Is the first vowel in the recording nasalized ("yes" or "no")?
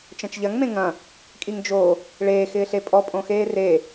yes